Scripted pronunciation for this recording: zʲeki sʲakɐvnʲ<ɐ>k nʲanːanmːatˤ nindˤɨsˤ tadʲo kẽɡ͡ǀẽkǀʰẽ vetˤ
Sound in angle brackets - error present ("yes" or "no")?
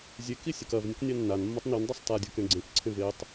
no